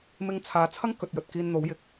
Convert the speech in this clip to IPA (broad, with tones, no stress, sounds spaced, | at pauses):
m ɪ˧ ŋ t͡sʰ aː˨˧ t͡sʰ ɐ˥ ŋ k ɵ˨ t̚ j ɵ˨ t̚ k iː˧ n n̪ o˨˥ w j ɪ˨˥ k̚